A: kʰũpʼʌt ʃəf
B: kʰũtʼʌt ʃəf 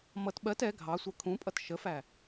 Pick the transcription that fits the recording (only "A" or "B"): A